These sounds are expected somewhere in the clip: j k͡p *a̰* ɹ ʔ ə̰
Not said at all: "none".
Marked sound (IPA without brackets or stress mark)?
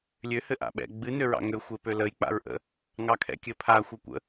a̰